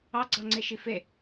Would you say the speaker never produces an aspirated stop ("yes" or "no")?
yes